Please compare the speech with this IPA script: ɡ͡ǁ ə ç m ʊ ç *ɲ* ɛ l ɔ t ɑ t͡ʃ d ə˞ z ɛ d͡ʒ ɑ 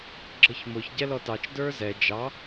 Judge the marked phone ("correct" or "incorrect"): incorrect